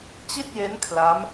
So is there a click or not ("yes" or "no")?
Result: no